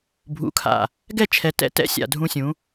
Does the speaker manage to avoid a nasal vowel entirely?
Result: no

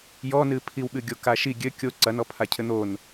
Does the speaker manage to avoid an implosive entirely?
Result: no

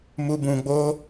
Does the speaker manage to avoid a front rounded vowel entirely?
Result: yes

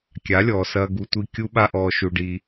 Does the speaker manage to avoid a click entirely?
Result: yes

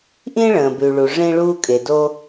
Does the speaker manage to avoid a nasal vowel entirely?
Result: no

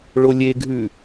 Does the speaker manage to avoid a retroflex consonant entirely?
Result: no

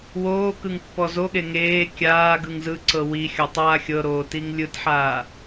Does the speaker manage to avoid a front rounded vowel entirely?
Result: yes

